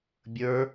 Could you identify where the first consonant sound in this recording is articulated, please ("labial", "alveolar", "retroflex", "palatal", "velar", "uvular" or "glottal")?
labial